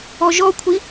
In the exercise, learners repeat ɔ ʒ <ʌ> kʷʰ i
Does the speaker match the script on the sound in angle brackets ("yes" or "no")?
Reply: no